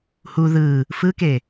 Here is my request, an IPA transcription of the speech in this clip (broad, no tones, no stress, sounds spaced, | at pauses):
h u ð ɯ | f ɯ k e